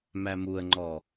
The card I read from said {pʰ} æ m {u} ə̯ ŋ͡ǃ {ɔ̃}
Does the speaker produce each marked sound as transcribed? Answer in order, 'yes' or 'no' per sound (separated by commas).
no, yes, no